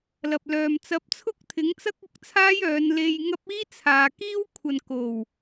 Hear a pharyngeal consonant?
no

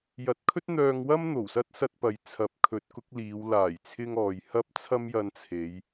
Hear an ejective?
no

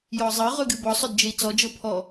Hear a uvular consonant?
yes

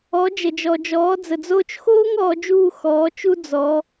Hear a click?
no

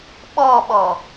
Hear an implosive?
yes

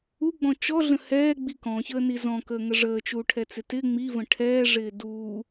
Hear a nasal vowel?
yes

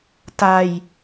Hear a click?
no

